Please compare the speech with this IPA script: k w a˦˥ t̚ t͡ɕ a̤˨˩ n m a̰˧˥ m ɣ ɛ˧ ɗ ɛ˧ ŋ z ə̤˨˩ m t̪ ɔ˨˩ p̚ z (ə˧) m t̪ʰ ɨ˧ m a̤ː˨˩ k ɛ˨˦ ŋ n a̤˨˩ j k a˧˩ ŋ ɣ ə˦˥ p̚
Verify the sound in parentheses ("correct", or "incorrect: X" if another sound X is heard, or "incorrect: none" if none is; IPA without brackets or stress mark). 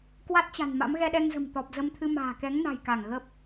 correct